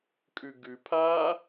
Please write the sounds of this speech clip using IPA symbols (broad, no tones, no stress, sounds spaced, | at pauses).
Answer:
kʼ ʉ ɡ ʉ pʰ aː